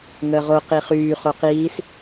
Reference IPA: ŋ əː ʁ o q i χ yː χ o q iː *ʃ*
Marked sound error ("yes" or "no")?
yes